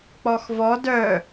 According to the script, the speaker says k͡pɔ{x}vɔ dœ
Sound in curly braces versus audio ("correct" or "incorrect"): correct